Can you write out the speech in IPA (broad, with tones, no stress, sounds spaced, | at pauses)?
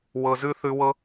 w ɤ˨ z ʉ˧ θ ʉ˧ w ɤ˦